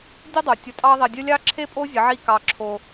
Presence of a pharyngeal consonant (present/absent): present